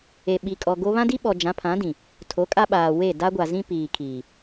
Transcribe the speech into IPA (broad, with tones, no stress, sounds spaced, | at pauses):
e˨ ɓ i˨ kʼ ɔ˨ ɡ o˦ β ã˦ d i˦ ɓ ɔ˨ d͡ʒ ã˨˦ pʰ ã˨˦ d ĩ˨ | tʰ o˨˦ kʼ a˦ ɓ aː˨ w e˦˨ d a˦ ɡʷ a˨ z ĩ˦ p iː˨ kʰ iː˨